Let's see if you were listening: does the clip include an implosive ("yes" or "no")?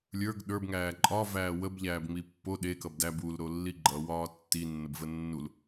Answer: yes